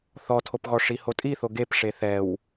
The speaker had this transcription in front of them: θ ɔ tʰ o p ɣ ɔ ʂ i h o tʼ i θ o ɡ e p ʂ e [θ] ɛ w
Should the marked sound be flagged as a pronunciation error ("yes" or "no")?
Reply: no